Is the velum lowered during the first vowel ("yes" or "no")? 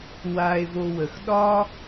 no